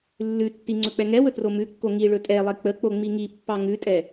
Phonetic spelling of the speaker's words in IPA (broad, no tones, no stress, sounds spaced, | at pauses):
lː ʉ tː i ŋ͡ǀ ɵ k͡p ɛ ŋ ɛ w ɵ t r o m ʉ kː o ŋ i ɭ ɵ tʼ ɛ lˠ e k͡p ə k͡p o ŋ͡m i ŋ i pː ɑ ŋ ʉ tʼ ɛ